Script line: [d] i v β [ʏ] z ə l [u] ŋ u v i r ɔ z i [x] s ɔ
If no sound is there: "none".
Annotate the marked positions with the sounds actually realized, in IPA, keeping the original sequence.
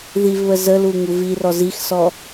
ð, ə, u, x

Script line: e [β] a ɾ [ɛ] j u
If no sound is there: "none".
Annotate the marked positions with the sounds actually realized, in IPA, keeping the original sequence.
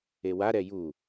w, ɛ

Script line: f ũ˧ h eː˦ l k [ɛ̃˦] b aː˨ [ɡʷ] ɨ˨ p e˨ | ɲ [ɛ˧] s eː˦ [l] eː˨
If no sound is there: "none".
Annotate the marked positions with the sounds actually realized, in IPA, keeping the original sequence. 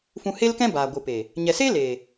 ɛ̃˦, ɡʷ, ɛ˨, l

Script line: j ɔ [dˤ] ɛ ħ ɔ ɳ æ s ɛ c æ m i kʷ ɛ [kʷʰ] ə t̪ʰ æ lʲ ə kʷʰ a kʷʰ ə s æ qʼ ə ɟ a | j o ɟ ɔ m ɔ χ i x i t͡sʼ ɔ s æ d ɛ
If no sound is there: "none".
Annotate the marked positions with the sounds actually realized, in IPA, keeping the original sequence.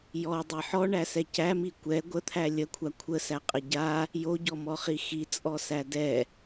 dˤ, ɡʷ

